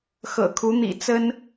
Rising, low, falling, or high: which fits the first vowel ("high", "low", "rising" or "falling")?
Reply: low